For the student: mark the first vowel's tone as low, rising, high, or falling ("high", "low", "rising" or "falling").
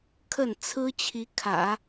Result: falling